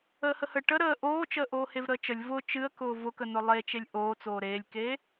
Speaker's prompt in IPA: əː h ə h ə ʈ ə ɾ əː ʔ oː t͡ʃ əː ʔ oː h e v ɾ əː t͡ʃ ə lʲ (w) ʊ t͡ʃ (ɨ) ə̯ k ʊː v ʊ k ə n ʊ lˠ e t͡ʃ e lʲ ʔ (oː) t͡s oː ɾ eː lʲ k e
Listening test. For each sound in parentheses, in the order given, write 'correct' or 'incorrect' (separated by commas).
incorrect, correct, correct